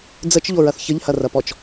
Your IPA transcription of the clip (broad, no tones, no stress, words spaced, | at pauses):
d͡zət͡ʃʎoɹɐθ çəʎhɐrɐpɔt͡ʃ